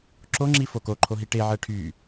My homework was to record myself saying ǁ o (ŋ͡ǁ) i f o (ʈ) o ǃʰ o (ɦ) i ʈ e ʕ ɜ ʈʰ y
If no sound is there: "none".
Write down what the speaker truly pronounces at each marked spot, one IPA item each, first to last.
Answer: ŋ͡ǁ, k, ɦ

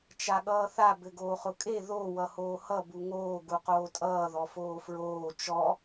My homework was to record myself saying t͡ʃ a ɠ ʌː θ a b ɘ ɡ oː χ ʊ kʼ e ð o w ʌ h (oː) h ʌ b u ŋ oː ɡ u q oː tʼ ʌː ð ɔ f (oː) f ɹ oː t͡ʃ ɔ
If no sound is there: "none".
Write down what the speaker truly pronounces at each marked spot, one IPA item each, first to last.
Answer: oː, oː

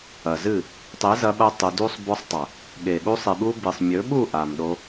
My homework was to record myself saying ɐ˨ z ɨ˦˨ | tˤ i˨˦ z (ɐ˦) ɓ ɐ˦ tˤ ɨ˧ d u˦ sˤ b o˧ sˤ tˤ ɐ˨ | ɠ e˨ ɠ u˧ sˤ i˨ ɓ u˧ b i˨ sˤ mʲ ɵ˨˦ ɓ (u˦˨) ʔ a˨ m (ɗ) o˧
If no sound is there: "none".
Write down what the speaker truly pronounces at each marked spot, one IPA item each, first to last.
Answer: ɐ˧, u˦˨, ɗ

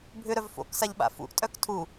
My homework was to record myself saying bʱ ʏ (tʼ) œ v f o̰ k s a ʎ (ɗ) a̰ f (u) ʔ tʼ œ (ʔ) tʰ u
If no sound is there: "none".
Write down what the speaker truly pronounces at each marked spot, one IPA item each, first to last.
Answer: ɾ, ɓ, ṵ, k

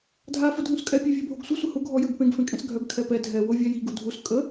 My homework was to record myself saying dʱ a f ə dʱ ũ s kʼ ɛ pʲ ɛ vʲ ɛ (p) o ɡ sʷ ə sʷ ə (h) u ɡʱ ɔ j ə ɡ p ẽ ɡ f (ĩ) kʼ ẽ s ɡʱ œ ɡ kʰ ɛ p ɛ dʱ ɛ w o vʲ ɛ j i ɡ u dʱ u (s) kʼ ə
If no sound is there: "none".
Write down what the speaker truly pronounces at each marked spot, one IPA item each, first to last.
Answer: bʱ, h, ẽ, s

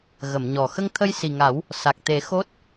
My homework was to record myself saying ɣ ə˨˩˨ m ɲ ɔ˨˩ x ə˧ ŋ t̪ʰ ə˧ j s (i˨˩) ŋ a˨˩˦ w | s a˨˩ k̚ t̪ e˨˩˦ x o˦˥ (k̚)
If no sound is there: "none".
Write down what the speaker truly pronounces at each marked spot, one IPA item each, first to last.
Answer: i˨˩, t̚

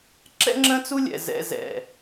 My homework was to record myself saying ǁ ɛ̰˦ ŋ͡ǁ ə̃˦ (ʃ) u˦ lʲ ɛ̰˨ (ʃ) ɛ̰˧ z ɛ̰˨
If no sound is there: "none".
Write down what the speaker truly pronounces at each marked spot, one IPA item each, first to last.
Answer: t͡s, z

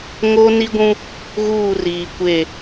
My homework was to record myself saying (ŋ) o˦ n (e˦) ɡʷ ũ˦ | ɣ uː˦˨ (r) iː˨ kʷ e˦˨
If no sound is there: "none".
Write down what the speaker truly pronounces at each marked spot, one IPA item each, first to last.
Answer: ŋ, i˦, r

